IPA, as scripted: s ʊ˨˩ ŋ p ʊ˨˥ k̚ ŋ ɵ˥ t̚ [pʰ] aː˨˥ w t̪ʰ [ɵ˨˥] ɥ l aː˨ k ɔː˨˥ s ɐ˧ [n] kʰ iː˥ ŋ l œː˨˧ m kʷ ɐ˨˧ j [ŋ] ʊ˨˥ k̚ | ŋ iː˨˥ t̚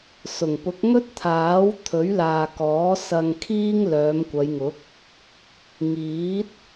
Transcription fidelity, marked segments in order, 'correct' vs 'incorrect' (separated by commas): incorrect, correct, incorrect, correct